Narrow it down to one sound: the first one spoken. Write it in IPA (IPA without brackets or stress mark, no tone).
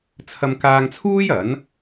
t͡sʰ